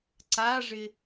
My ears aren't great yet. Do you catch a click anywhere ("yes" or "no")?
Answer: yes